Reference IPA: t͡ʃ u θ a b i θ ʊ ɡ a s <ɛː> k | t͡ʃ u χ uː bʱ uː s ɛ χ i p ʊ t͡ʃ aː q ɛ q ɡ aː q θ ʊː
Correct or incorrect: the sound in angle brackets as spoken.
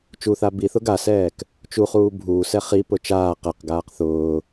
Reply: correct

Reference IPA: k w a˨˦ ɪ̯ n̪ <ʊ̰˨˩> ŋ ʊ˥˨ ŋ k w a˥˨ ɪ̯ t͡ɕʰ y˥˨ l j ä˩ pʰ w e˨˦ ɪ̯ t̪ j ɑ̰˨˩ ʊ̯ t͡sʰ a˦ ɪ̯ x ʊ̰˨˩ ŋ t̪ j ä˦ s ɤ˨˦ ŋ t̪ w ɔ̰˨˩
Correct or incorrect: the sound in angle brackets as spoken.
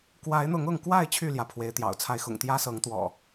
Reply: incorrect: ʊ˨˦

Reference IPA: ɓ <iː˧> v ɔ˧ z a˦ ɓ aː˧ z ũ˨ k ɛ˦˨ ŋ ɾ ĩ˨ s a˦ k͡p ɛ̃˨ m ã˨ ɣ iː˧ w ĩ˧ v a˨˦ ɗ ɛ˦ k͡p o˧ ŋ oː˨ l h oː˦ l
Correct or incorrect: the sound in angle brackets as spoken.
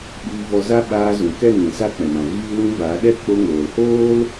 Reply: correct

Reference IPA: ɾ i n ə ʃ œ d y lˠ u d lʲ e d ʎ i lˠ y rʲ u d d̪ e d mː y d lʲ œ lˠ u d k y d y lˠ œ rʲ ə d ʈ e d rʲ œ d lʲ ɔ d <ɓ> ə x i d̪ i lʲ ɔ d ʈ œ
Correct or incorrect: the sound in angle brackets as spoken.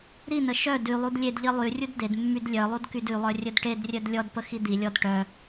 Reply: incorrect: p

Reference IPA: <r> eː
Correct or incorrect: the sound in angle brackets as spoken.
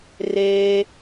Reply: correct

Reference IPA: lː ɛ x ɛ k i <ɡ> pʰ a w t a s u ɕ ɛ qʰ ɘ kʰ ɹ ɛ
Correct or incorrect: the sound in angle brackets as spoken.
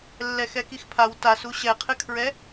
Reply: incorrect: x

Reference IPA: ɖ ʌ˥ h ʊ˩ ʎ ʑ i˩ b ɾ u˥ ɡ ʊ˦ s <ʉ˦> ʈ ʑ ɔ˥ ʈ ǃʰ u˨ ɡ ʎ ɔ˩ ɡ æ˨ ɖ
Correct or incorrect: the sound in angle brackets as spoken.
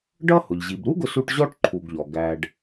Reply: incorrect: u˦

